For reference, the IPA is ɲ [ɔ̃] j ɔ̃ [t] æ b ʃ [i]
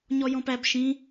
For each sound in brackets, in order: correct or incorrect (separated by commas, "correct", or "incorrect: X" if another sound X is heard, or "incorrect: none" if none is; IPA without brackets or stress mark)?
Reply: incorrect: ɔ, incorrect: p, incorrect: ĩ